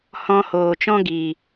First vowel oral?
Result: no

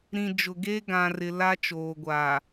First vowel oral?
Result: no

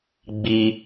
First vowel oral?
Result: yes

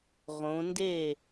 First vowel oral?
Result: no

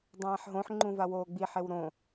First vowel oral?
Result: no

